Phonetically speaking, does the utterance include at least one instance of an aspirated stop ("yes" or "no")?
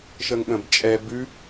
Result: no